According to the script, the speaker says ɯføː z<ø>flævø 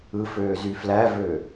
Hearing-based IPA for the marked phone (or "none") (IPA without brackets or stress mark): y